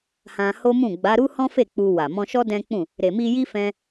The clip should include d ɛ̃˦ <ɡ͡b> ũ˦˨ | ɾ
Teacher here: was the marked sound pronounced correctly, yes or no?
no